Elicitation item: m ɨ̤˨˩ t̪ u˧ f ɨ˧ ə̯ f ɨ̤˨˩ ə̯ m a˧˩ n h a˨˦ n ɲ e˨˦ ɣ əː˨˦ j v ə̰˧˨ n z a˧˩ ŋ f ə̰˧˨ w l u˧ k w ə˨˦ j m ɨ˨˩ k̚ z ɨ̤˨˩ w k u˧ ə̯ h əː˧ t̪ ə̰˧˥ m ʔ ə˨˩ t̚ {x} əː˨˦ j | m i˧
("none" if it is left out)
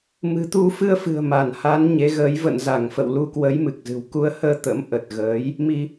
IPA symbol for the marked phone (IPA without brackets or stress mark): ɣ